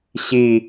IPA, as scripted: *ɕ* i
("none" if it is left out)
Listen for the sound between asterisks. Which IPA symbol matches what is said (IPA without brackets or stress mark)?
ɕ